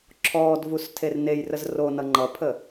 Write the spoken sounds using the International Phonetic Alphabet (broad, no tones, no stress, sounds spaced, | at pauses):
ǁʰ ɔː d v u s tʰ e r n e j r ə z r o n ʌ ŋ͡ǃ ʌ pʰ ə